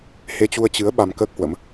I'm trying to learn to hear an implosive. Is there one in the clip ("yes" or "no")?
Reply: yes